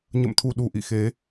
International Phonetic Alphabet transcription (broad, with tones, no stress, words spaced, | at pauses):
ɲə̰˧˨mt̪ʰu˨˩ ɗu˨˩ʔḭ˧˨xe˨˦